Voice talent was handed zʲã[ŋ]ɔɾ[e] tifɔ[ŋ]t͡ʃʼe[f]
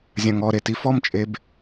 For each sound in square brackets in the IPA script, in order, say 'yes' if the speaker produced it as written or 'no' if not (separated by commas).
yes, yes, no, no